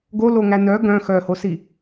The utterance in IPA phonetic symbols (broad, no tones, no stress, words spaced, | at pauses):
ɡoloŋæ nœ ɡœ̃ xœhosi